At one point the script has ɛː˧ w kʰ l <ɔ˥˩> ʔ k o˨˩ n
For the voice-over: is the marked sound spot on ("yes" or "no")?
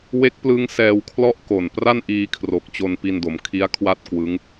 yes